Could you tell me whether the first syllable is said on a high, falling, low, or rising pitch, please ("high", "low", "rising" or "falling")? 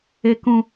high